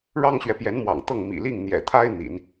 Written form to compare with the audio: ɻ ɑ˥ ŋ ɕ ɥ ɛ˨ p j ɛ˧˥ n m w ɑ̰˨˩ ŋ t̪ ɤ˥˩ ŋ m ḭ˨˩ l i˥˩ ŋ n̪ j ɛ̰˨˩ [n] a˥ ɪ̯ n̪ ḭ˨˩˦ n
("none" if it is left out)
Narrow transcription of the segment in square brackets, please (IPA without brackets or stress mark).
t̪ʰ